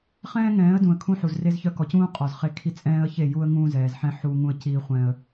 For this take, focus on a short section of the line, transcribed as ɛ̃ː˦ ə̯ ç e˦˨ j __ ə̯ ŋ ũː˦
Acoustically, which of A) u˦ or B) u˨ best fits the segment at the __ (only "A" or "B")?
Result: A